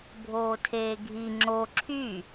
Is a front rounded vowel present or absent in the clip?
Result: present